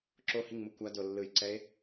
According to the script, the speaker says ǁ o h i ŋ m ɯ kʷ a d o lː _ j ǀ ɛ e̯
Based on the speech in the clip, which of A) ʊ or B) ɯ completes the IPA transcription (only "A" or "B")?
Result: B